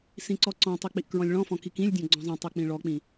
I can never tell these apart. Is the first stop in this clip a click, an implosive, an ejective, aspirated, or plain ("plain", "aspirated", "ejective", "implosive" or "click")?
click